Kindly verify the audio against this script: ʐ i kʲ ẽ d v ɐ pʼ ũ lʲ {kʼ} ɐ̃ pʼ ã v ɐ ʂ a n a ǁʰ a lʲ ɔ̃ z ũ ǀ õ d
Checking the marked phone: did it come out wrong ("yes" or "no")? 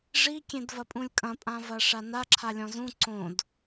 no